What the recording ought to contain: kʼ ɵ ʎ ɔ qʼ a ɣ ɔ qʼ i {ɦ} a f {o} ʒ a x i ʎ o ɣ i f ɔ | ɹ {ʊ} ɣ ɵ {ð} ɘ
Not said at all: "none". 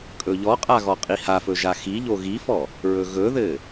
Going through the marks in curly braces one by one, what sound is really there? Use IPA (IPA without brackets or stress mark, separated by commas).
h, ɵ, ɵ, ð